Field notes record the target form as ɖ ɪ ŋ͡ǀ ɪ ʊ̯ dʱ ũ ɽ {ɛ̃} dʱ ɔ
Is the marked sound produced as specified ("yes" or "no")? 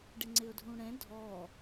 yes